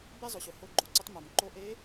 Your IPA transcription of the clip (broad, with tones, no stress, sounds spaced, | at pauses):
b e˥ zˤ ʊ˩ ɕ ʊ˩˧ h o˧ ɡ͡ǃ o˩ ǀ ʊ˧˥ tˤ m ʊ˩ m ǃ o˧˥ ʔ e˧˥